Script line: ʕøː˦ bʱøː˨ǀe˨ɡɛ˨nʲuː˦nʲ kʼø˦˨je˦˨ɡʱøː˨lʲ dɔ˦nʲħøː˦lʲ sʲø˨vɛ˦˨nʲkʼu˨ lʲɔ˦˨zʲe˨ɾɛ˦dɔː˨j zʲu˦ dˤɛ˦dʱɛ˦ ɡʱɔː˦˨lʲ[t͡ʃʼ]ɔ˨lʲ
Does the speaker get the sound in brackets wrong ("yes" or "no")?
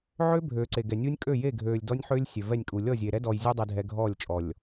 no